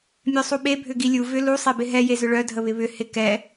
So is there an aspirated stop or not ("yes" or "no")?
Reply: no